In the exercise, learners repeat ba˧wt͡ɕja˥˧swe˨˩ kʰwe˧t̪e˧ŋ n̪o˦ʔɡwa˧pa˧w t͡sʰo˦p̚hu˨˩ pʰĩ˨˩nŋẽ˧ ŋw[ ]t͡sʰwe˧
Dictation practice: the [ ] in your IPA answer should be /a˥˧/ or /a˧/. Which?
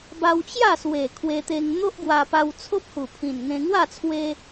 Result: a˥˧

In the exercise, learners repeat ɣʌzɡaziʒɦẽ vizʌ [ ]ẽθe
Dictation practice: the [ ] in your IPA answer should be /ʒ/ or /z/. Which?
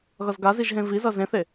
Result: z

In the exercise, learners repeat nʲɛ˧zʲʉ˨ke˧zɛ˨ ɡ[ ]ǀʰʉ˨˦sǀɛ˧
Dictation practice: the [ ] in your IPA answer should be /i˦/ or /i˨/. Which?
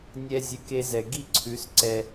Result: i˦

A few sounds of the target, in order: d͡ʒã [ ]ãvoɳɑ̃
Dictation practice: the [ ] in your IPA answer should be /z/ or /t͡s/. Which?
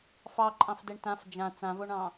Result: t͡s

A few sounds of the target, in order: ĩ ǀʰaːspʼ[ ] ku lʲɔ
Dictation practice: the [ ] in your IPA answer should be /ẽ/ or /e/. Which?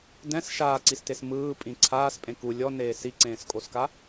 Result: ẽ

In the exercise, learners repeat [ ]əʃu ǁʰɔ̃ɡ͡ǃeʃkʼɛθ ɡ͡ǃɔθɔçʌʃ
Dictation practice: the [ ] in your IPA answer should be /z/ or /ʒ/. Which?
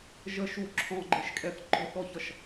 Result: ʒ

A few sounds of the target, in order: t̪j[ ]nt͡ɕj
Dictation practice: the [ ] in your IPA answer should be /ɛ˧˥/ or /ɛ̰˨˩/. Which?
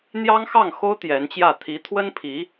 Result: ɛ˧˥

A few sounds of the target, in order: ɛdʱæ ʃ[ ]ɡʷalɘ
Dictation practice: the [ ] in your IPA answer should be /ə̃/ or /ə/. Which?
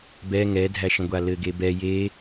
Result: ə̃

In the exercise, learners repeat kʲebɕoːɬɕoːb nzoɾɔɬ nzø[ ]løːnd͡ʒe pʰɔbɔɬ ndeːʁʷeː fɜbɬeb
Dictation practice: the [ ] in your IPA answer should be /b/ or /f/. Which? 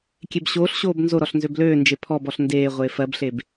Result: b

